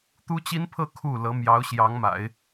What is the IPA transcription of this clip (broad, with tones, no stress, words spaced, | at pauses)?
t̪u˥t͡ɕi˥npʰɤ˥˧ kʰu˥˩lɤ˧˥ mjɑ˧˥ʊ̯ɕjɑ˧˥ŋma̰˨˩˦ɪ̯